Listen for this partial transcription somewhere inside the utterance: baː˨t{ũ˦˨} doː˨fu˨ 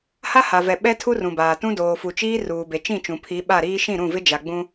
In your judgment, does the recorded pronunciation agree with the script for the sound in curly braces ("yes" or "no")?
no